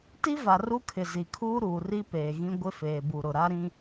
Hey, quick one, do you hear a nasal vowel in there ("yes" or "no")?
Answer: yes